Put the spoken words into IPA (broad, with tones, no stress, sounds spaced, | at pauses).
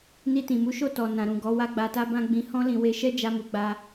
n i˧ t ĩ˨ m u˨˦ ʃ o˦˨ t ɔ˨ n ã˨ ɾ ũ˨ ɡ ɔ˨˦ w a˦ ɡ͡b a˧ t a˦ b ã˦ ɡ͡b ĩ˧ h ɔ̃˦ l ĩ˧ w e˧ ʃ ɛ˦ d͡ʒ a˦ m u˧ ɡ͡b a˧